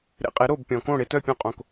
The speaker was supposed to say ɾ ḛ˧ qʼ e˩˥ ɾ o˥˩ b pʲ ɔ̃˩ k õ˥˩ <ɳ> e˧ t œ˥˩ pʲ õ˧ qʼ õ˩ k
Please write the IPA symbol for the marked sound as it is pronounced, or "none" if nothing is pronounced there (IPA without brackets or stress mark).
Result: ɽ